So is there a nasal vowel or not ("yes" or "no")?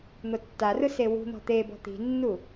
no